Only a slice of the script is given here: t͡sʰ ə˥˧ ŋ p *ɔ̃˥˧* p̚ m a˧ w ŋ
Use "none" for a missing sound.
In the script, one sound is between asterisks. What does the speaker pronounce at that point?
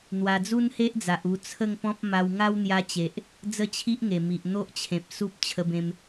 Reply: ɔ̃˦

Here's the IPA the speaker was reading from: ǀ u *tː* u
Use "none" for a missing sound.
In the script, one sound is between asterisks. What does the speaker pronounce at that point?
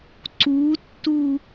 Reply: tː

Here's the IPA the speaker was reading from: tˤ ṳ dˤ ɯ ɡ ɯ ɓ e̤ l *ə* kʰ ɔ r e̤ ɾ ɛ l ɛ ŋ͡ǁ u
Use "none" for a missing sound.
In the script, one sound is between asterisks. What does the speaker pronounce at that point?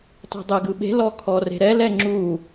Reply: ɔ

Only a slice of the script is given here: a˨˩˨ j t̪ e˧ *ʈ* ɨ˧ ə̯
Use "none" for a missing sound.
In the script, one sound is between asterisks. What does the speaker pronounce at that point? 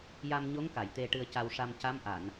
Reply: ʈ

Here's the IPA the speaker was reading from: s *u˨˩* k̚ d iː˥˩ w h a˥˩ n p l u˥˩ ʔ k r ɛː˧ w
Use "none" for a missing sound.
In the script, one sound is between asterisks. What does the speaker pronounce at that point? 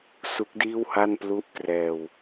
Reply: u˦˥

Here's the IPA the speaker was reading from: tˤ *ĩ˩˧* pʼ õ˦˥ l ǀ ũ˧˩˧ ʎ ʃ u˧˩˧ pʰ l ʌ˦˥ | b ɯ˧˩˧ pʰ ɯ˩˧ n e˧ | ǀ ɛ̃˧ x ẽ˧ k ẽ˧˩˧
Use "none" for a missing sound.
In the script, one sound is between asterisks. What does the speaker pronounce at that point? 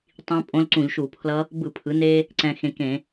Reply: ĩ˦˥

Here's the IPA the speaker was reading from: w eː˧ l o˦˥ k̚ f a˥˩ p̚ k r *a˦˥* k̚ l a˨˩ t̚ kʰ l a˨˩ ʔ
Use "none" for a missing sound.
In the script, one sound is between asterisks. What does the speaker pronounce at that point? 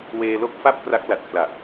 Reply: a˦˥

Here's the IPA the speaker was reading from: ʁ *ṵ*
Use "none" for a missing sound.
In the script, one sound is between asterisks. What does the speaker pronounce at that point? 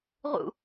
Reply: ṵ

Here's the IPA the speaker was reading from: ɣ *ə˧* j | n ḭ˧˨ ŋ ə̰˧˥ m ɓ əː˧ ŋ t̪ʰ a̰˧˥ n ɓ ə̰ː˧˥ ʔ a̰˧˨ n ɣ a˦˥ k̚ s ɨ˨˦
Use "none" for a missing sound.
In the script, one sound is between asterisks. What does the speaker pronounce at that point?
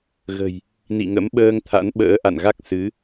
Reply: ə̤˨˩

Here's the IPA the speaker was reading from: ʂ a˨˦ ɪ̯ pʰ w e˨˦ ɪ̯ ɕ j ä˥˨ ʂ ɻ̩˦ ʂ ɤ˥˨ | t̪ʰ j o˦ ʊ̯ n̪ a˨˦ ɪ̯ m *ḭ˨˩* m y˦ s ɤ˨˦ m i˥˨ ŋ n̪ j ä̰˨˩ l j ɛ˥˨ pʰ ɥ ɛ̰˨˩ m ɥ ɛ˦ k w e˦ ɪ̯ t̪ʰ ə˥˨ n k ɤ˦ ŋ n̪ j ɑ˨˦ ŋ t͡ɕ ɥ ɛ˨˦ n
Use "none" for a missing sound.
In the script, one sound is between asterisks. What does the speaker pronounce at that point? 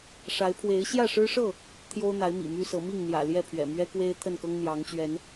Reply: ḭ˨˩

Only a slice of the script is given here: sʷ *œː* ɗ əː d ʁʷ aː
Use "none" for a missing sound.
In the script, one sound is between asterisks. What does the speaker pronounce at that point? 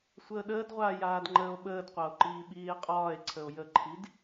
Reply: əː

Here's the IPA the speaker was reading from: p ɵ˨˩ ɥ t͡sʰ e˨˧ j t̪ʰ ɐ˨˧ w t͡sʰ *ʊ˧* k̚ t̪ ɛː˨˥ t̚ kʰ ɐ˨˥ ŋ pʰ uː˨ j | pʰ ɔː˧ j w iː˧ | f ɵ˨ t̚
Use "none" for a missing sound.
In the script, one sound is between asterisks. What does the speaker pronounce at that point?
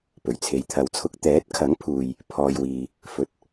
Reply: ʊ˧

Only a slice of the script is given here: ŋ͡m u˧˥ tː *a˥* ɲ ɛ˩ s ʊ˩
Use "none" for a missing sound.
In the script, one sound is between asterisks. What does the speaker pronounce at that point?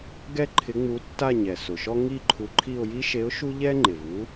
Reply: a˥˧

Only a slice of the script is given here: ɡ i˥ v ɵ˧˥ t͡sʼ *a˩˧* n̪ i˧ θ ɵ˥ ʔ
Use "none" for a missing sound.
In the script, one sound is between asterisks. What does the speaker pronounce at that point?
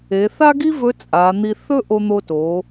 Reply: a˩˧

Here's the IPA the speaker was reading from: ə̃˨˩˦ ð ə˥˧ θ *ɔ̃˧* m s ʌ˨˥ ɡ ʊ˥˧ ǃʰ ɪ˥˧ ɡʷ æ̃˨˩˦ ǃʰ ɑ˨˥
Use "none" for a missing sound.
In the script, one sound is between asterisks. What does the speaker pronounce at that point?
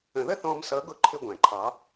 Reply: ɔ̃˧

